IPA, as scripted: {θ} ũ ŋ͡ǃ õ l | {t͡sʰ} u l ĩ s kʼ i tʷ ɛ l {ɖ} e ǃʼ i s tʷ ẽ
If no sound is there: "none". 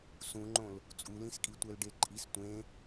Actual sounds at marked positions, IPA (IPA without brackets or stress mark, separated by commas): s, t͡sʼ, ɖ